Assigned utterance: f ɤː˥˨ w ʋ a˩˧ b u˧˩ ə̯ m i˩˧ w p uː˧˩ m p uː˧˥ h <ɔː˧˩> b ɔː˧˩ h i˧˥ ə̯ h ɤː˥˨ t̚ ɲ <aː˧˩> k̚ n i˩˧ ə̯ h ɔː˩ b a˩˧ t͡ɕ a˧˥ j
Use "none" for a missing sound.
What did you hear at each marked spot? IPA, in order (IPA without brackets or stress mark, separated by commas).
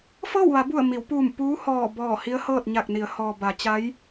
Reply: ɔː˧˩, a˧˩